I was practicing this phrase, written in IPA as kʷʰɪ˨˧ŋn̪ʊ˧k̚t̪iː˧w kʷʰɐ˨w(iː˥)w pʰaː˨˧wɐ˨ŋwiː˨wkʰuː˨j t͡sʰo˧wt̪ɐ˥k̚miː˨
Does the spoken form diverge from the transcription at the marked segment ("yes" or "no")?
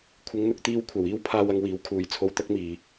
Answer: no